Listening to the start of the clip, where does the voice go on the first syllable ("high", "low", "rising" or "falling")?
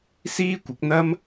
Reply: high